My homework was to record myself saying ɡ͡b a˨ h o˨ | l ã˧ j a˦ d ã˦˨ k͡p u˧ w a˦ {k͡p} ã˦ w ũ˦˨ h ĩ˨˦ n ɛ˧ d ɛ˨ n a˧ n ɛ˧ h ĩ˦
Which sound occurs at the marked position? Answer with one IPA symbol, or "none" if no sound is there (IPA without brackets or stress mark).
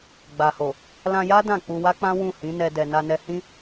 k͡p